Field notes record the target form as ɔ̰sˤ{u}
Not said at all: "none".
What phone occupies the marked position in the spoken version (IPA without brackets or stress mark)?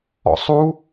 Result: u